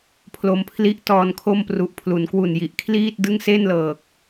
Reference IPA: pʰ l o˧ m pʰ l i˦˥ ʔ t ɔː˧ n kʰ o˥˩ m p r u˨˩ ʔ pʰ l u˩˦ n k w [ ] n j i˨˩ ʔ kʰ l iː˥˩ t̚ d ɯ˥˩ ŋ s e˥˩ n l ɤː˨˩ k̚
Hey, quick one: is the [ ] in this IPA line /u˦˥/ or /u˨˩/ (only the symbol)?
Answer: u˨˩